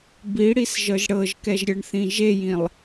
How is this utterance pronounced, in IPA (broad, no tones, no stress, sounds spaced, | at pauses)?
b i ɽ i s ʒ ɤ ʒ ɽ ɤ ʒ k ɛ ʒ ɾʲ ɤ ɳ θ ĩ ʒ e j ĩ lˠ